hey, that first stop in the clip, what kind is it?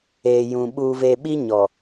implosive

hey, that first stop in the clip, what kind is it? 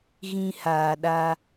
implosive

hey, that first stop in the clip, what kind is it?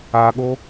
implosive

